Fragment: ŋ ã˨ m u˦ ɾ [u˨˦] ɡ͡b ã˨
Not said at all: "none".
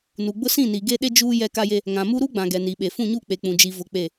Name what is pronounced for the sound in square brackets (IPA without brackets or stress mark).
u˦